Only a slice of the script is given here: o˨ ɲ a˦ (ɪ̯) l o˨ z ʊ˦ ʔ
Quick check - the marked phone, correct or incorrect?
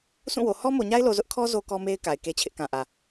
correct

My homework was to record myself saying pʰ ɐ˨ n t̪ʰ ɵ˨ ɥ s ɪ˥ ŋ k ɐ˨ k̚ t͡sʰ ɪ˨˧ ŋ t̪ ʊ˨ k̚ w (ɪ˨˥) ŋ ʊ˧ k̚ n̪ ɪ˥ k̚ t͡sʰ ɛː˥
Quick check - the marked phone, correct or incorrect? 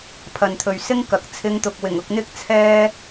incorrect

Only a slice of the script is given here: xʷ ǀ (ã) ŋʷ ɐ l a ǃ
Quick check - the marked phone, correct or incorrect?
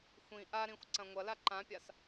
incorrect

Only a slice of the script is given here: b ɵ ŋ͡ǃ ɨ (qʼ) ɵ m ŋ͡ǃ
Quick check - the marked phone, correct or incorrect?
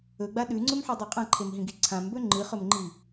incorrect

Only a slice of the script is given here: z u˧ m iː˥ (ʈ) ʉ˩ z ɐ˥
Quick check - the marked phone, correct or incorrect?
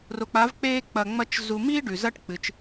incorrect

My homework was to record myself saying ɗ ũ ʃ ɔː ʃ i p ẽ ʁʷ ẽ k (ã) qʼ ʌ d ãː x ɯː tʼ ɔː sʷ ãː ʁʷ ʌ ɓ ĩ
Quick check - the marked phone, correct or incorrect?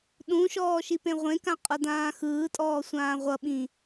correct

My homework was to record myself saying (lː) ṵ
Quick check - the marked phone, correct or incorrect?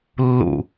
correct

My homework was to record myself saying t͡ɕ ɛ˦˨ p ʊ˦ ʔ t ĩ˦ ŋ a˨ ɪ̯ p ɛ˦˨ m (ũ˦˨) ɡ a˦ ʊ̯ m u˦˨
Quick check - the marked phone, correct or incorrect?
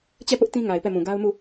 incorrect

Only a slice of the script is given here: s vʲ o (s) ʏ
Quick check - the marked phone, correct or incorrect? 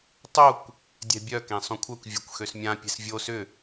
correct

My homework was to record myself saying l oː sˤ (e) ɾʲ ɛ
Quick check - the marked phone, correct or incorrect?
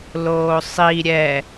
incorrect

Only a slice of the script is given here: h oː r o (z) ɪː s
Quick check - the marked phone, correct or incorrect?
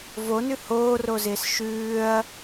correct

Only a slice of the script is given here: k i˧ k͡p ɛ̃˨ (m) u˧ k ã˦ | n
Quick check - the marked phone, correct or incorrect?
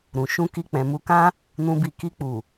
correct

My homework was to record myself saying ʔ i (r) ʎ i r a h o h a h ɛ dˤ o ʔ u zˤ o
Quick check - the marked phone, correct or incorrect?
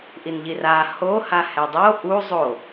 incorrect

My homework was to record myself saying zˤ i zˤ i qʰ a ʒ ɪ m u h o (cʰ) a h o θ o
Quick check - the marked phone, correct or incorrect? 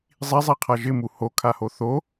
incorrect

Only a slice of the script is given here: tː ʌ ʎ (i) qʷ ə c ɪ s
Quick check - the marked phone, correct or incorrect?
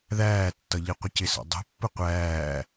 correct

